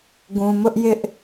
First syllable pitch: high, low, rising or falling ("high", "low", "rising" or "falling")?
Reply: low